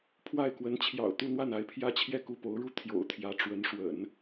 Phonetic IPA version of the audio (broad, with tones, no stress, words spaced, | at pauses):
pʰwa˥˩ɪ̯kwə˧˥n t͡ɕʰjɑ̰˨˩ʊ̯t̪u˥˧n̪wa˥˩n a˧˥ɪ̯pʰjä˥t͡ɕʰjɛ˥˧ ku˥˩po˧˥ʊ̯ɻu˥˩ t̪ʰjo̰˨˩ʊ̯t̪ʰjä˧˥ ʈ͡ʂwə˧˥nʂwə̰˨˩˦n